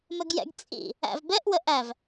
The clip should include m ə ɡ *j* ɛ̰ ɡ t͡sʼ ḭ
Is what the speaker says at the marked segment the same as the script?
yes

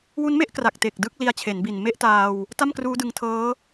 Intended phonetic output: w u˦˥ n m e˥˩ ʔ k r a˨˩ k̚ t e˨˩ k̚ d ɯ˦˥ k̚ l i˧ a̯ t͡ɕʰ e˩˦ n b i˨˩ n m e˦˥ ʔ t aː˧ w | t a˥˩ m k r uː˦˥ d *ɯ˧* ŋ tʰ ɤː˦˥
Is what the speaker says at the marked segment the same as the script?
yes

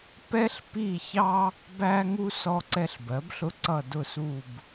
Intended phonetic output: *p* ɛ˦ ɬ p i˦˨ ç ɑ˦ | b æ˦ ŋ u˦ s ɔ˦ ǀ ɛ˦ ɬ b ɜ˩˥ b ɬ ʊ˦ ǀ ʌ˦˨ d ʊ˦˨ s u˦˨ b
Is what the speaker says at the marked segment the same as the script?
yes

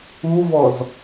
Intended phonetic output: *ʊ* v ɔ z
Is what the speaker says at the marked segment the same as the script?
no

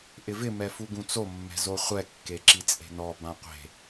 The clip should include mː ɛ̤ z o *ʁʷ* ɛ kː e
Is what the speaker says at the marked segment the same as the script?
no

